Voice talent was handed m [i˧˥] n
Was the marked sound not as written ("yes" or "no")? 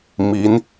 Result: no